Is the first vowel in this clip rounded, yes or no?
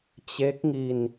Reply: no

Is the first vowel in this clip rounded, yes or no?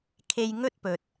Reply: no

